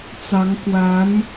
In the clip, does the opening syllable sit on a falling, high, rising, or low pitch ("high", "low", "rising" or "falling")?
rising